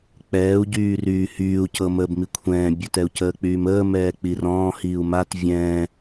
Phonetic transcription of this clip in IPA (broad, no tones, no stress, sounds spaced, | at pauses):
k͡p ɛː u̯ ɟ yː r yː h yː u̯ c ɤ m əː b m i kʷʰ ɛ̃ː bʲ ɵ t ɛ u̯ c əː k͡p yː m əː m ɛː k͡p i r ɔ̃ː h iː u̯ m a t vʲ ɛ̃